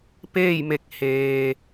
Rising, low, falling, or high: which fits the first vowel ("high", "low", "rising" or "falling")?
falling